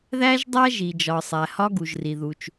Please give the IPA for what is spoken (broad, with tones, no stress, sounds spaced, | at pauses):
ð æ˥ ʒ dˤ æ˥ ʒ i˩ d͡ʒ ɒ˩ sˤ æ˩ h ɒ˥ ɡ u˩ ʒ r i˩ ð u˩ t͡ʃ